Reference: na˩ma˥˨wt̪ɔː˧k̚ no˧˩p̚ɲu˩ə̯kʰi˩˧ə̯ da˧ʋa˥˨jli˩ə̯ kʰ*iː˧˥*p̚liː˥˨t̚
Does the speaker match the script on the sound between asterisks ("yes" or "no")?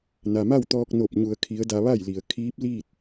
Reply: yes